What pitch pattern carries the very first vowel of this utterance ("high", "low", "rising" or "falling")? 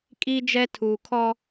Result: high